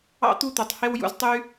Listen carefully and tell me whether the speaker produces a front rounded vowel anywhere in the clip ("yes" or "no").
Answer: yes